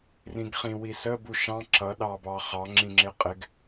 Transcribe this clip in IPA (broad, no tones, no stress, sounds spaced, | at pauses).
r ĩ ɡ χ ĩ w i s ə b u ʃ ɑ̃ ǁ ʌ ɗ ɑ b ɑ χ ɑ ŋ͡ǁ ĩ ŋ͡ǁ ɪ qʼ ɪ ɡ